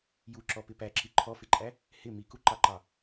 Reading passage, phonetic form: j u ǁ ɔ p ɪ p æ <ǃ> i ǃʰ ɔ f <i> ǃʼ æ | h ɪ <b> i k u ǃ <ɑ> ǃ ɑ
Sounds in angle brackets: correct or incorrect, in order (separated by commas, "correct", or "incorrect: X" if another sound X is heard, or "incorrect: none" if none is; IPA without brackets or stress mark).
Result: incorrect: ǁ, incorrect: ɪ, incorrect: m, correct